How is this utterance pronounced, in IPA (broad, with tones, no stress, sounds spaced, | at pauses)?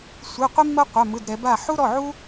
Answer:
sʷ ɯ˩˧˩ qʷ i˥ mː ɤ˥ qʷ a˩˧˩ m ɯ˩˧˩ d ɾ ɛ˩˧ b a˥˨ ħ u˥ ɾ ɔ˩˧˩ ʕ u˥